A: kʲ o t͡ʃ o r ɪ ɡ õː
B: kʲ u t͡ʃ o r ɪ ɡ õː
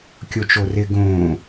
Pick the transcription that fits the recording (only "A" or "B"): A